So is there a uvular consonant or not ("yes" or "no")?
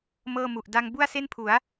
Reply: no